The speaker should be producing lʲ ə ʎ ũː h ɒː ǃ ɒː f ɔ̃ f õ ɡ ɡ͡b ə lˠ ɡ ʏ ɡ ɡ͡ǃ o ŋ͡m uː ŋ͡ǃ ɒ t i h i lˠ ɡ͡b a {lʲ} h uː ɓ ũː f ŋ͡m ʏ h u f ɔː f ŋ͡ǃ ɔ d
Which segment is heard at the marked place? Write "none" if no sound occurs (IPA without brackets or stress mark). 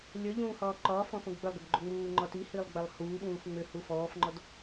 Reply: lˠ